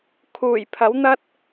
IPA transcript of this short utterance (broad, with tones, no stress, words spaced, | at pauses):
kʰuː˨˩jpʰɐ˨˥wn̪ɐ˥t̚